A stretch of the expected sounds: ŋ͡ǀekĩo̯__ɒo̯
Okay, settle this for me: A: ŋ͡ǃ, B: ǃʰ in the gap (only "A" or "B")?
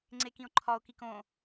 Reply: B